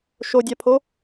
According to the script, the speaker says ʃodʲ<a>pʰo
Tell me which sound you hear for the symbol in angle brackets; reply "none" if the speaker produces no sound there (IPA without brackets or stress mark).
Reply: a